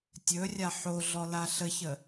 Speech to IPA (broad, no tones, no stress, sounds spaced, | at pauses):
tʲ ɵ rʲ a ħ o ɮ ɔ l a ɬ ə ç ə